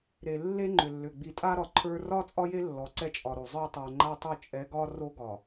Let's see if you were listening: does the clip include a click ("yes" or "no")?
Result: yes